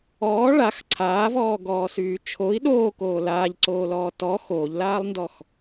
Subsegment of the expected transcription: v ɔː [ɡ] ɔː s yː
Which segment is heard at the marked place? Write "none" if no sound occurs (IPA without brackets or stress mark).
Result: ɡ